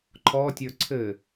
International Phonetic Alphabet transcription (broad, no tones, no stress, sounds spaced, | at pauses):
ǃʰ ɔ tʲ ə˞ ǀʰ ɘ